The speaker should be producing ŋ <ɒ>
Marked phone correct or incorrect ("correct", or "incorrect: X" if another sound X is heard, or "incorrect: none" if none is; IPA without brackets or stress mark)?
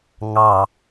incorrect: ɑ